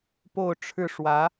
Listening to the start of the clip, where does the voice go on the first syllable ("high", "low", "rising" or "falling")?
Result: falling